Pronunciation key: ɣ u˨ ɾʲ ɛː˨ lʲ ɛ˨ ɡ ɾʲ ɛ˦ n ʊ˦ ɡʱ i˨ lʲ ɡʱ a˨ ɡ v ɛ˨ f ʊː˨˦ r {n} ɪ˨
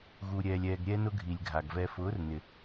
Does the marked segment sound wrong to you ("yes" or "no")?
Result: no